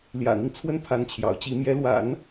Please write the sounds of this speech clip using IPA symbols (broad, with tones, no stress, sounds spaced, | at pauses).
l j ä̰˨˩ n̪ i˦ ŋ t͡sʰ w ə˥˩ n pʰ a˧˥ n t͡ɕʰ j ɑ̰˨˩ ʊ̯ t͡ɕ i˧˥ m j ɛ˧˥ l w a̰˨˩˦ n